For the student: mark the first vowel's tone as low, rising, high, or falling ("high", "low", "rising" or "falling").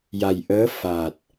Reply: low